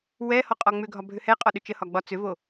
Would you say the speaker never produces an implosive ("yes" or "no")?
no